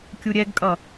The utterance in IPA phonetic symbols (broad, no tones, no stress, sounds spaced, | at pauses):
kʲ u ɾʲ ɛ ɡ kʼ ʌ